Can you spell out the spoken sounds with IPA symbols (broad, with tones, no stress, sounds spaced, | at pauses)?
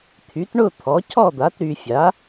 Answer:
t̪ʰ y˩˥ t ɳ ʊ˥˨ t̪ʰ ɔ˩˥ cʰ ɔ˥˨ d̪ a˩˥ t ɾ y˨ fʲ a˩˥